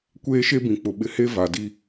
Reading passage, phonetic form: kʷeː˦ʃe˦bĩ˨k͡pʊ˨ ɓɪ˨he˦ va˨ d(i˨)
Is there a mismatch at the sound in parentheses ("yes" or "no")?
yes